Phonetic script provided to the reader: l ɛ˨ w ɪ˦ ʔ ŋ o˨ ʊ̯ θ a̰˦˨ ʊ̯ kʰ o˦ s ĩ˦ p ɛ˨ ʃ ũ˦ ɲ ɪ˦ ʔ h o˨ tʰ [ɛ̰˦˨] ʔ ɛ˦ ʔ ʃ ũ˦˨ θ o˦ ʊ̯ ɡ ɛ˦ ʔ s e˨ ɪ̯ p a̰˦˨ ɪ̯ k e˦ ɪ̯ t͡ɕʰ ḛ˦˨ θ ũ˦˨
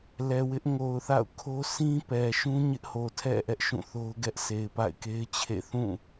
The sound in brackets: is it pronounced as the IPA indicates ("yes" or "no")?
yes